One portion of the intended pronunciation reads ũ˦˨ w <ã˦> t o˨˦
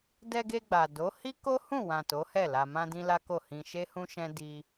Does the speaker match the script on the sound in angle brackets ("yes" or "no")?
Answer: no